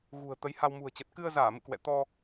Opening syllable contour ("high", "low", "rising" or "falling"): low